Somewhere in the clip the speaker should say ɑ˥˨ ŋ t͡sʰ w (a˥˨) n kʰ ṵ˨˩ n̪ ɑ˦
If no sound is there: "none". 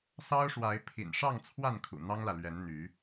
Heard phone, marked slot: a˥˨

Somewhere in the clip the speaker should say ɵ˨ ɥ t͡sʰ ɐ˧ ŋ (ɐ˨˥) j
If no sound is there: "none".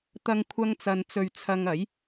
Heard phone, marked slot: ɐ˨˥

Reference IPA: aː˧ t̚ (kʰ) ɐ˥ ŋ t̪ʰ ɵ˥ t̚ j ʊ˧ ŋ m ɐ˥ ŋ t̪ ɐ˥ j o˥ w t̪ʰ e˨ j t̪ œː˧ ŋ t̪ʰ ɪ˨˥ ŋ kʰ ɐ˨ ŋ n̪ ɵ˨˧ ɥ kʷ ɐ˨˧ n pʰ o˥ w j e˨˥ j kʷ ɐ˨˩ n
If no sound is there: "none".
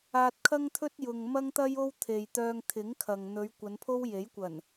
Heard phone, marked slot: kʰ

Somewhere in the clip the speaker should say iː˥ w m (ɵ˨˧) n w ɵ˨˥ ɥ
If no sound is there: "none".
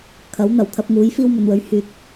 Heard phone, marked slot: ɵ˨˧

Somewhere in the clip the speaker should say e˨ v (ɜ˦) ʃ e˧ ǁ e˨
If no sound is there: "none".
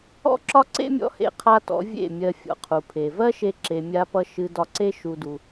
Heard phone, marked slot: ɜ˦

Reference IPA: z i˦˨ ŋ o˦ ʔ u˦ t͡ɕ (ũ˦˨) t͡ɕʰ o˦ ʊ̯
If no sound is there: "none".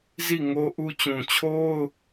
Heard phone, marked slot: ũ˨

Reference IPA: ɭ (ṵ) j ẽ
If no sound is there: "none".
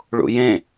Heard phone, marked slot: ṵ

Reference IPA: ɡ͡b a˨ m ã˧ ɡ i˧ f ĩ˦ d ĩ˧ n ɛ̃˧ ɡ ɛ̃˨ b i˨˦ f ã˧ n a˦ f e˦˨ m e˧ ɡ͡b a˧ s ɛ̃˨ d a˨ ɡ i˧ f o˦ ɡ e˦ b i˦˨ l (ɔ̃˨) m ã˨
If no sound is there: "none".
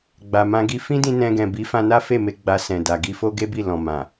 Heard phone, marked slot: ɔ̃˨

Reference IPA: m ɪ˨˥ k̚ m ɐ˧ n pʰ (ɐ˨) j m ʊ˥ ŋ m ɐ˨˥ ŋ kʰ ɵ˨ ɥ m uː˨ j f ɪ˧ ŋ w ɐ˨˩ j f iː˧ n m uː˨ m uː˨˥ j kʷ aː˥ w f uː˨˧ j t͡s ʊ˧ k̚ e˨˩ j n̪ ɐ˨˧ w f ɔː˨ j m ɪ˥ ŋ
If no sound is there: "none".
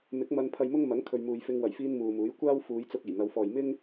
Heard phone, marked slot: ɐ˧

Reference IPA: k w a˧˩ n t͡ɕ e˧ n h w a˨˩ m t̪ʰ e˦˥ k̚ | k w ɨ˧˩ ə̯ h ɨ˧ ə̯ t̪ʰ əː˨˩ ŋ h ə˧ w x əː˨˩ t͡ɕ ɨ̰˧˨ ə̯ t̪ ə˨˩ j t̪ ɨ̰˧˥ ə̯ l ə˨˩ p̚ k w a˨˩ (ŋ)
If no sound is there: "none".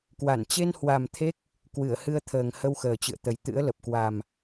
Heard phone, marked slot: m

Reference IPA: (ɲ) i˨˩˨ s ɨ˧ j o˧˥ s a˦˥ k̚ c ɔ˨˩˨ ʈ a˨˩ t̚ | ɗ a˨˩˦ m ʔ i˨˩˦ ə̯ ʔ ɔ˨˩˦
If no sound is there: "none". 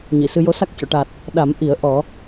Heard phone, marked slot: ɲ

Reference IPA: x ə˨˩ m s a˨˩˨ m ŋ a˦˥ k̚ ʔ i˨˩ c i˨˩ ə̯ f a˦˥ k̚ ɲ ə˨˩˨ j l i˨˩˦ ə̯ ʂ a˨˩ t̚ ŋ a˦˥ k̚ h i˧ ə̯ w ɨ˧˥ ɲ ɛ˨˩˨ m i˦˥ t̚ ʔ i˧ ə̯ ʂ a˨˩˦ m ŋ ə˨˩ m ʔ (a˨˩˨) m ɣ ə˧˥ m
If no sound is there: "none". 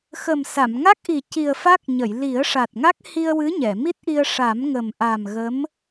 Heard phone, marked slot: a˨˩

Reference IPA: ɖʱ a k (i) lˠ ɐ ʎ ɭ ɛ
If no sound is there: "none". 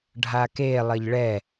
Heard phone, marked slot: e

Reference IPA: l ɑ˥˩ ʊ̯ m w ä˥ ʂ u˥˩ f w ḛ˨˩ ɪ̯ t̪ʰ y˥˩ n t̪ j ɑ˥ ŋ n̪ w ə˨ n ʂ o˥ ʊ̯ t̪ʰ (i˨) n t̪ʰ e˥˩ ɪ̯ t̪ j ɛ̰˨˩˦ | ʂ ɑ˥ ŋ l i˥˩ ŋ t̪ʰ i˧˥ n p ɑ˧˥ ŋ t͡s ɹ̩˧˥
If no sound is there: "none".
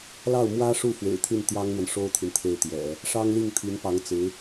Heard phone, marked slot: i˨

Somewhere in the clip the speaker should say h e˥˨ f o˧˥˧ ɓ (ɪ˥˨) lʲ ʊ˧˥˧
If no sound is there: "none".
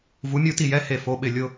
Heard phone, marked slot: ɪ˥˨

